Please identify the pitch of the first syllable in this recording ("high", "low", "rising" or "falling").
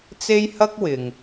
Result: high